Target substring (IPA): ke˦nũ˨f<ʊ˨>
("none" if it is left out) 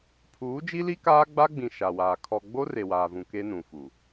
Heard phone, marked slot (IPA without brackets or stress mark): u˨